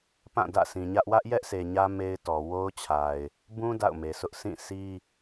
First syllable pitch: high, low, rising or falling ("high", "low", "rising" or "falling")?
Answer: falling